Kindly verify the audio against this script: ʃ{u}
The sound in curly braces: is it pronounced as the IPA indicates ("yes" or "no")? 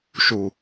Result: yes